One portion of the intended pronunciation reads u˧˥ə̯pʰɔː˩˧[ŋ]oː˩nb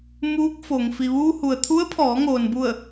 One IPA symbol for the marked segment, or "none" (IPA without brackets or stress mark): ŋ